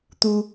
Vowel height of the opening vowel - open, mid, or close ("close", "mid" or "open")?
close